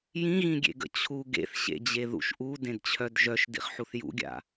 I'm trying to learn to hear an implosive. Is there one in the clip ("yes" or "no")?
no